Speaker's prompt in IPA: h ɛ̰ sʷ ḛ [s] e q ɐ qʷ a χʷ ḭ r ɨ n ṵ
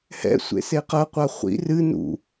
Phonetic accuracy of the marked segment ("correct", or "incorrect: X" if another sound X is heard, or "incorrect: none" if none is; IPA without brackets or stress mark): correct